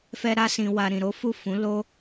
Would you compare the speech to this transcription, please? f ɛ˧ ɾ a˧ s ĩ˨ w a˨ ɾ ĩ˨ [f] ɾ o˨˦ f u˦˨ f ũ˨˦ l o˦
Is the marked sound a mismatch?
yes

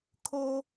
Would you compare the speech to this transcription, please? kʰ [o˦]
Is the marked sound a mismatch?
no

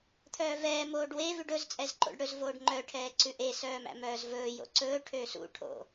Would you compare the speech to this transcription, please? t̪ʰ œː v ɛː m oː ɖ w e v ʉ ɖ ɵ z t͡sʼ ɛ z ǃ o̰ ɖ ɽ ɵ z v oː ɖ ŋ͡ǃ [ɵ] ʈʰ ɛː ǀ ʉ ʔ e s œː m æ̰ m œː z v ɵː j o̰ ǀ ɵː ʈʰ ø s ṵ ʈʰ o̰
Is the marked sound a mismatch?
yes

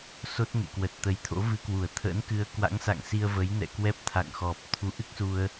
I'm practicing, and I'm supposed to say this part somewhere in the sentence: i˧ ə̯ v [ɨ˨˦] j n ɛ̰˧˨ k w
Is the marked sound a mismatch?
yes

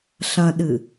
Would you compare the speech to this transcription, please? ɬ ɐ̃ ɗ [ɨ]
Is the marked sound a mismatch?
no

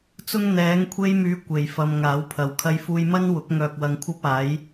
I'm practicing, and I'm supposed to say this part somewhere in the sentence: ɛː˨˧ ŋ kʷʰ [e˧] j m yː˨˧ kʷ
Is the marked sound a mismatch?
no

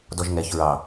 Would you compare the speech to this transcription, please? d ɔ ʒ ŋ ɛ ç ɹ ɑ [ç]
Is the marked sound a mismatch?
yes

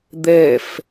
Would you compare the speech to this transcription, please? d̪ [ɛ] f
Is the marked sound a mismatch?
no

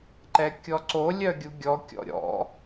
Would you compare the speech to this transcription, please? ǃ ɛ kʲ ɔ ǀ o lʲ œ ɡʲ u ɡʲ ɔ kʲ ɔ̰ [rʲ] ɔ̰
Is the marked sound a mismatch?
yes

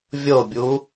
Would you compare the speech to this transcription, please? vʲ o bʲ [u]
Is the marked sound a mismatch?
no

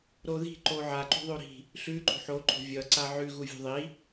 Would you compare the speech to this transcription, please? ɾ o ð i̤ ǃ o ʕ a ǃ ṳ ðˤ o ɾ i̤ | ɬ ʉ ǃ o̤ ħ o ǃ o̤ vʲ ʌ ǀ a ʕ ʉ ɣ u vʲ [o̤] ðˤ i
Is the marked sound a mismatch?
no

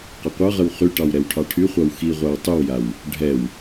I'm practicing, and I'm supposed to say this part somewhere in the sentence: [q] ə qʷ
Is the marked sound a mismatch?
no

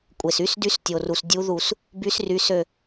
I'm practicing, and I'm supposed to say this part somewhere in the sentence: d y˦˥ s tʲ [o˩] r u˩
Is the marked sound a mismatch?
no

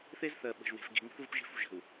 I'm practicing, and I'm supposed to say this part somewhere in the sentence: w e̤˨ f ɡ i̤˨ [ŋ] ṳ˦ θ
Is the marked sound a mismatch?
no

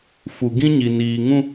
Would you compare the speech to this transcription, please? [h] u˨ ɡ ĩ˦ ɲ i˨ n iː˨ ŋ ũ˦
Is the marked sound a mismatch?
yes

